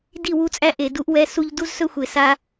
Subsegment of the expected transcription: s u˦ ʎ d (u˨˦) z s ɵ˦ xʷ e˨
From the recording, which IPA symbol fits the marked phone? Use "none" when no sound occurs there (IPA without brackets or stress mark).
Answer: u˦